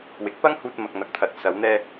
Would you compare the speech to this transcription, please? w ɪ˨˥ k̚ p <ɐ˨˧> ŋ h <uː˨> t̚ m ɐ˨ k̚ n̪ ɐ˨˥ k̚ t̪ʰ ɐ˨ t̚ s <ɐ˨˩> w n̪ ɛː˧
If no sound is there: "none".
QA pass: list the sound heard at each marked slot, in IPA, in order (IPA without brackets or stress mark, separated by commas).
ɐ˥, uː˧, ɐ˨˧